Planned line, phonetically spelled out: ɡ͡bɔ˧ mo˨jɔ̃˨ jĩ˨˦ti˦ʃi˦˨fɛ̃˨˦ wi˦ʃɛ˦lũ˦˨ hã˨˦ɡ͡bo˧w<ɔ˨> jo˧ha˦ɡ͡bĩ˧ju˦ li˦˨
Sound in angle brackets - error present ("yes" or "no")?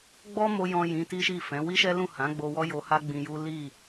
yes